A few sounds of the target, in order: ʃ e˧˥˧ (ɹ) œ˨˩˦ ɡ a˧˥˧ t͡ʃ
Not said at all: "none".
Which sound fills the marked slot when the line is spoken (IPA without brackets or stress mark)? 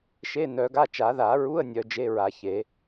n